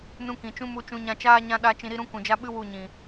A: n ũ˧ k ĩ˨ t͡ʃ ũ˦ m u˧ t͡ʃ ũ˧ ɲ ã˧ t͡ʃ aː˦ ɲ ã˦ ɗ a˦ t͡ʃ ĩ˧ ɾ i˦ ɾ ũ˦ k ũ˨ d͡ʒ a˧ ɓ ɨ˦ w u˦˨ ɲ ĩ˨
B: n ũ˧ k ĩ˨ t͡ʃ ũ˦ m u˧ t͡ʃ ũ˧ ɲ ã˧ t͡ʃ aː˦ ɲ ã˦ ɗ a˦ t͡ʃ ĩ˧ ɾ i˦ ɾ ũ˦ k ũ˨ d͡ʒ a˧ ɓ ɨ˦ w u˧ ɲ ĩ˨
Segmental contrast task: A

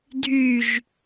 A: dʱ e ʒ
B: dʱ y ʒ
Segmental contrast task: B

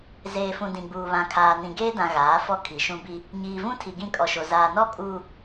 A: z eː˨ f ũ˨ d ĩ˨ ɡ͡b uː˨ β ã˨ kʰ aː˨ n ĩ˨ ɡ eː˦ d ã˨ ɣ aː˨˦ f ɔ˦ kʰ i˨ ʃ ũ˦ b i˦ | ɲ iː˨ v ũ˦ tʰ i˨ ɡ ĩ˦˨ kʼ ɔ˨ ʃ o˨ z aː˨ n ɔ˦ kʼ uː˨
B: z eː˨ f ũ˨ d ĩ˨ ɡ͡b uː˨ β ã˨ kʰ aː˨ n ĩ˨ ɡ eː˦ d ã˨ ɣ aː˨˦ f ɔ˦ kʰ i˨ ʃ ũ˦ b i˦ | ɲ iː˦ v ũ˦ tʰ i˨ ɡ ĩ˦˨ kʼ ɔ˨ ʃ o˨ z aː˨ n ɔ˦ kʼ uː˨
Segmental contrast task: A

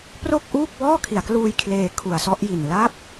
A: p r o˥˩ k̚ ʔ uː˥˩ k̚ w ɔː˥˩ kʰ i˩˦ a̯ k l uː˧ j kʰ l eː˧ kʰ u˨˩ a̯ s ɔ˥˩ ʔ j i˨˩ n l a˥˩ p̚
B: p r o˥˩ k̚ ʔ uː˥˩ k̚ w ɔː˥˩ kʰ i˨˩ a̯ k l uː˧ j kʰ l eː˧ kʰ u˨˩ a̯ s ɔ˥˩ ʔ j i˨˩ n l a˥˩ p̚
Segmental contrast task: A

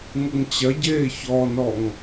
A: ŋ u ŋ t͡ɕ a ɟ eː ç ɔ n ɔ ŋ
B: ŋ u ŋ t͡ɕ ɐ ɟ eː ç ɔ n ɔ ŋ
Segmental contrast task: B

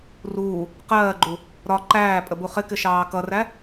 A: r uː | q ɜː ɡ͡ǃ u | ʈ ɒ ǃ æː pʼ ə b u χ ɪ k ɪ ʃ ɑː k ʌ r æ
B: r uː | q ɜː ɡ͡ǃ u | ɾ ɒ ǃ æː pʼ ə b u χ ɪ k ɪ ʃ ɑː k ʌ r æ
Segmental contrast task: B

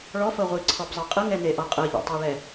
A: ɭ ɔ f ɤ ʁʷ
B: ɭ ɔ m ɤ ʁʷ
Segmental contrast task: A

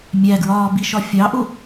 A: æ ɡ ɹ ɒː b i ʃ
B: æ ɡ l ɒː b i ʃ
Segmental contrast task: A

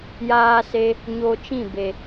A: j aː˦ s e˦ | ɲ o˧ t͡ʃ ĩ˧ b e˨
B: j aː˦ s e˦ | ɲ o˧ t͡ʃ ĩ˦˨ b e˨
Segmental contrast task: B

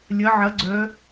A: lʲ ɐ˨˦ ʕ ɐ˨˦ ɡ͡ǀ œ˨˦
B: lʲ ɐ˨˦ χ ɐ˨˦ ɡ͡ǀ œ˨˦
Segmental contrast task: A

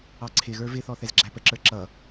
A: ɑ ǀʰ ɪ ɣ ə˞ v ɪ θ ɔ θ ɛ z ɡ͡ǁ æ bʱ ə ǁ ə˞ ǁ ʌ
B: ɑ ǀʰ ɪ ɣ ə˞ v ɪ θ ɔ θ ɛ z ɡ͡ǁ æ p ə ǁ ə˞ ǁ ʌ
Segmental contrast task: B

